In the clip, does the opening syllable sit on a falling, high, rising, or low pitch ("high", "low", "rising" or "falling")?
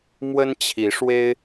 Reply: high